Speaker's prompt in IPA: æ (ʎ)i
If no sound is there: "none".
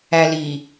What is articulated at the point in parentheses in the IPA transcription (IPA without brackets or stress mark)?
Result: l